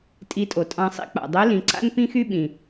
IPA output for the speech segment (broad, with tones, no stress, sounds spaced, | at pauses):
tʼ i˧˥ tʼ o˩ tʼ ɑ̃˧ sˤ ḭ˥ k͡p a̰˩ dˤ y˧˥ l ĩ˩˧ ǀ a̰˥ n p ĩ˥ x y˥ ɓ ĩ˩